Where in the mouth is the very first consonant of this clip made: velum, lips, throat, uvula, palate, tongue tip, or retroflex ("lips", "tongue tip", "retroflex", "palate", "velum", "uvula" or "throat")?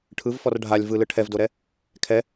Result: retroflex